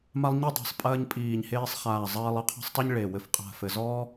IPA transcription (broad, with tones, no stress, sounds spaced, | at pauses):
m a˧ lˠ ɲ i˧ dˤ e̤˨˩ sˤ pʼ ɐː˧ ɲ pʼ iː˨˩ ɲ h eː˧ sˤ χ aː˨˩ zˤ ɐː˧ lˠ ɘ˧ qʰ ɔ̤˧ sˤ tˤ i˧ ɲ ɭ e˨˩ w ɘ˨˩ f qʼ a̤˨˩ f ɘ˨˩ z ɔː˧